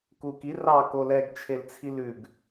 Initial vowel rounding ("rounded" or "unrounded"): rounded